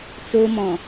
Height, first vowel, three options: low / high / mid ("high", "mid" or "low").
mid